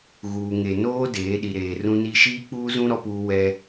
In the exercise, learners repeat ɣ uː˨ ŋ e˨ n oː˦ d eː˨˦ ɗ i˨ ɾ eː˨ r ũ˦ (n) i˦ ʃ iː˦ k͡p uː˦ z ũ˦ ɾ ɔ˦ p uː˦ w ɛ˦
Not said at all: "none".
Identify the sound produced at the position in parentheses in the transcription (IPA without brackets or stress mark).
n